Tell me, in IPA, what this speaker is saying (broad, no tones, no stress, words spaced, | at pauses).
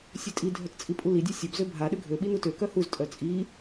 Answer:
sʲøtʼi dʱœtt͡sʼipʼuli dʲøsʲœb zøbʱa ɗøɡʱø ɓinutø kœhuz tʼœt͡sʼi